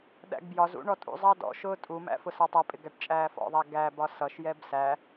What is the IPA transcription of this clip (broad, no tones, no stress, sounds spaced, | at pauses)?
ɗ æ̰ ɡ b j ɒ z ṵ ɳ ɔ tʼ ṵ zˤ ɑ d ɔ̰ ʃ ʊː tʼ u m æ̰ f ʊ s ɑ tˤ ʌ pʼ ɪ ɡ æ ʈ t͡ʃʼ æː f ɔ̰ ðˤ æ ɡ æ b ɒ s ʌ ʃ j ɛ b s æ